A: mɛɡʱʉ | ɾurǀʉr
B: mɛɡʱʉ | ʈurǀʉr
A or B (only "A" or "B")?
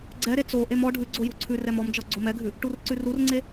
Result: B